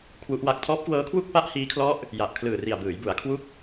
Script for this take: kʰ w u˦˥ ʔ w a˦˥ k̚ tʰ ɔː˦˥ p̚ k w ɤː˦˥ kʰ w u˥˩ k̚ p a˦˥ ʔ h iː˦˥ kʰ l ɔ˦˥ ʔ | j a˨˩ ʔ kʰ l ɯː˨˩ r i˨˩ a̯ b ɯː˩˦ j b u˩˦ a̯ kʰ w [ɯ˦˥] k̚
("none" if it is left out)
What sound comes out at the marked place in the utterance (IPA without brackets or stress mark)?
u˦˥